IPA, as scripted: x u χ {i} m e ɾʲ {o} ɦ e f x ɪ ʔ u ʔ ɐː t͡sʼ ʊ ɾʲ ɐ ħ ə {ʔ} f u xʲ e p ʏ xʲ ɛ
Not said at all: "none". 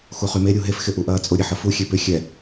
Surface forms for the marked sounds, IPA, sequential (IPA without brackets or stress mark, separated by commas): y, u, none